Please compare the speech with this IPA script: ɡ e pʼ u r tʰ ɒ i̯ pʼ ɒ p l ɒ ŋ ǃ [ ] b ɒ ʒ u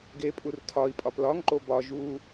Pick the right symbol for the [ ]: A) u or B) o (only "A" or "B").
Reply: B